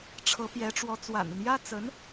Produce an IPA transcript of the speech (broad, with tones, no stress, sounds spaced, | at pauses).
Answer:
ʈ͡ʂʰ ɤ˧˥ p j ɛ˧˥ ʈ͡ʂ w ɔ˧˥ t͡s w a̰˨˩ n ə˦ n j ä˥ t͡s ə˧˥ n